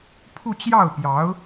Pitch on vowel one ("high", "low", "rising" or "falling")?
falling